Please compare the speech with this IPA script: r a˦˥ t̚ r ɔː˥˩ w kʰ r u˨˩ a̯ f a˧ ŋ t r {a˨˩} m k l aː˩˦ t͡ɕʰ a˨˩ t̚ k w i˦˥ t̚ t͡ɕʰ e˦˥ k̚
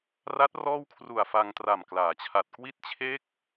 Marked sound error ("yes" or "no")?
no